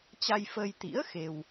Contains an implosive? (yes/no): no